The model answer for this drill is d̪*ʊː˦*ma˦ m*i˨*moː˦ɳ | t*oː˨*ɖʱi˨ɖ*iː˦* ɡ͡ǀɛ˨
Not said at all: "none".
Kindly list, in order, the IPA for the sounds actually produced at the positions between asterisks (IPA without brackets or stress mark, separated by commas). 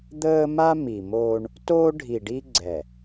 əː˦, i˨, oː˦, i˦